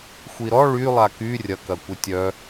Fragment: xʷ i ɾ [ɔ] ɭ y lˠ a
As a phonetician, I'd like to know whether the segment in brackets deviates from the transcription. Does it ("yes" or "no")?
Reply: no